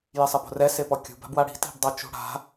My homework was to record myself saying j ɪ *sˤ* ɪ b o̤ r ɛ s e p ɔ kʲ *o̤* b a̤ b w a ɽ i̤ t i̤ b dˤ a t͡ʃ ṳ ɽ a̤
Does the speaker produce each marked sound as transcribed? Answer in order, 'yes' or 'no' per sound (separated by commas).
yes, no